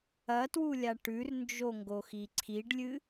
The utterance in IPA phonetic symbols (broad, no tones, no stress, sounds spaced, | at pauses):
ɐ t w u lʲ a ʈ ʉ r n d͡ʒ o ŋ ɡ o x i ǀʰ i ɖ lʲ ɨ